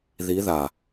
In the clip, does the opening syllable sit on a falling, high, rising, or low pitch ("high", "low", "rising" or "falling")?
rising